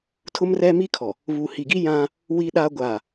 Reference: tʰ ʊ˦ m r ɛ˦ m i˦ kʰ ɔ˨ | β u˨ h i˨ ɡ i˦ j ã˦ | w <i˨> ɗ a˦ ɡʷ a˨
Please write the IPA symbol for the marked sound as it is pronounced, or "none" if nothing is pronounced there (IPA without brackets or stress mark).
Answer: i˦